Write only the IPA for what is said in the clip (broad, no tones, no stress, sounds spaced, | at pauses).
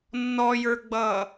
nː ɔ j ə˞ ɡ͡b ʌː